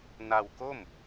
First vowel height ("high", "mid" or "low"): low